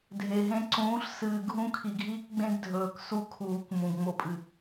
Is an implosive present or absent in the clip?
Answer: absent